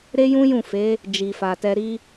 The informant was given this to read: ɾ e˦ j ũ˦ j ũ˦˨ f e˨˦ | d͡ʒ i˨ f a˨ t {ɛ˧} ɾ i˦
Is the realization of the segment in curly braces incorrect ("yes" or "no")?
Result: no